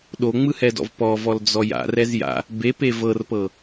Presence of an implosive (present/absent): present